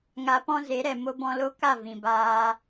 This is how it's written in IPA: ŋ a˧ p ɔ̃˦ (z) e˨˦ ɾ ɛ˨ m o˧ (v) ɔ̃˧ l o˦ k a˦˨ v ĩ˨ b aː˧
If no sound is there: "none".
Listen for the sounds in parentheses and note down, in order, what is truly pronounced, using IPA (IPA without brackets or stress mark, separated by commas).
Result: z, b